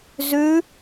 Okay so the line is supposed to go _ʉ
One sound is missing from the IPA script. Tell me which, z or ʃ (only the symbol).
z